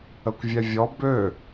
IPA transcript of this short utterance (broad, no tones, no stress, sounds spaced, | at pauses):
ə kʷ vʲ ɛ vʲ ɔ b ø